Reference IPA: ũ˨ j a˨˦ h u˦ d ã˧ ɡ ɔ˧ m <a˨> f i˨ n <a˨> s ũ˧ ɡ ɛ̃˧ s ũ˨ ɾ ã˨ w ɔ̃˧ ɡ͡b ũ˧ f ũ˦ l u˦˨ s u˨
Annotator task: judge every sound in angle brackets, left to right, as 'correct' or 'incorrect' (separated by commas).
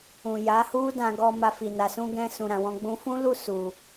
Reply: incorrect, correct